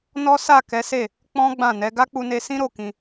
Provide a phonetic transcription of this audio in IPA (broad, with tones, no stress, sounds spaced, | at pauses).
n ɔ˦ s a˦˨ k ɛ˨˦ s e˦˨ | k͡p ɔ̃˦ ɡ͡b ã˦˨ n ɛ˨˦ ɡ a˦ k͡p u˧ n e˧ s ĩ˦ ɾ o˦˨ k ĩ˧